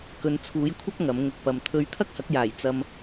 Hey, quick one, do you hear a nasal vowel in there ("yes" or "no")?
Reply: no